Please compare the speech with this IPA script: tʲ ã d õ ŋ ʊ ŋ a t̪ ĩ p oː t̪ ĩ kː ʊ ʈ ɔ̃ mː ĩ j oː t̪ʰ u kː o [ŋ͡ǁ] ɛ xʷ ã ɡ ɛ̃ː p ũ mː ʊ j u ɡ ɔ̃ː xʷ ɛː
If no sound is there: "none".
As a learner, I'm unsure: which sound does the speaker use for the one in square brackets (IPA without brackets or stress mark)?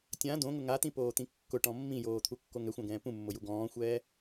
ŋ